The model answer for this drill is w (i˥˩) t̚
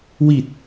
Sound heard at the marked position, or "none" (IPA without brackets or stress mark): i˨˩